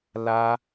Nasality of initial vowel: oral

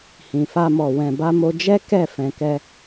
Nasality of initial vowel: nasal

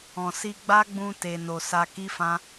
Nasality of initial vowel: nasal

